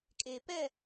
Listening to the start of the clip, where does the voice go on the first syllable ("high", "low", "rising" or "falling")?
low